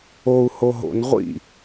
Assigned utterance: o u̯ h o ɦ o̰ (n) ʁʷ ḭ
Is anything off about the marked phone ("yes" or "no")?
no